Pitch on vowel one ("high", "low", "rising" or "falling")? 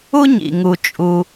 high